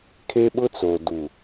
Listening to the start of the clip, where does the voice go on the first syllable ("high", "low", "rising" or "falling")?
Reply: high